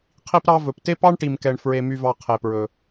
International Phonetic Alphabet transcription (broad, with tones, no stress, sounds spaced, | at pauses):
qʰ i˦ p ɾ ɑ˦ v ɵ˨ p t e˦ p ɑ˦ ɳ ʈ i˨ m k ɛ˨ ɳ f ɹ e˨ m y˨ v ɑ˨ qʰ e˨ p ɹ ɵ˨